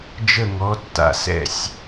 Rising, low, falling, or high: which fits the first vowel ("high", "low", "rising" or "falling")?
falling